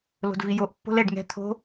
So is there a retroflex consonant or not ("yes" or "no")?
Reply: yes